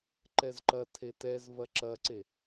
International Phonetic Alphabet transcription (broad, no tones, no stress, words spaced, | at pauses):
ǃɛzǃɐtʰe tɛz vɐǁɐǀe